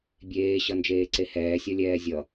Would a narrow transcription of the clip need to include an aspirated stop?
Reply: no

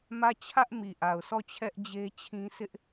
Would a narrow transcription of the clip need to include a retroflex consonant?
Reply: no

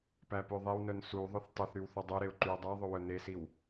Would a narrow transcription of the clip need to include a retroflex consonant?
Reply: no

